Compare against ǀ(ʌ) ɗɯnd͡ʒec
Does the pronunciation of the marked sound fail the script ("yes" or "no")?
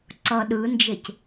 no